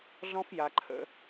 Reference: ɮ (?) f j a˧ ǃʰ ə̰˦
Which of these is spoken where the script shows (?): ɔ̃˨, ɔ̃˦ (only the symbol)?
ɔ̃˦